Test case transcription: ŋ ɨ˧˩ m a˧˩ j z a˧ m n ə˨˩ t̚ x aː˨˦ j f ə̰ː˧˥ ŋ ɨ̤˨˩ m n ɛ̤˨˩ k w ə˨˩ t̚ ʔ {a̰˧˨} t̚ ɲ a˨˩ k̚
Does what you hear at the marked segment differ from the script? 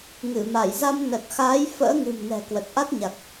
yes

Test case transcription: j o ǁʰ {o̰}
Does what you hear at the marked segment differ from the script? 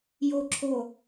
yes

